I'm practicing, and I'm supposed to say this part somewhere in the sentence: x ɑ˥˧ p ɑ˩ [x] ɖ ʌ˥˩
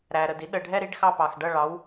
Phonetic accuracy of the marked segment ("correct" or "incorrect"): correct